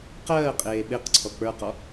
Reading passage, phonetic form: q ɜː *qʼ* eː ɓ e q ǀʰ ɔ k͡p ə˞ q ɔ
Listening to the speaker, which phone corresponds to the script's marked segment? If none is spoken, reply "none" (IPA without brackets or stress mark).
qʼ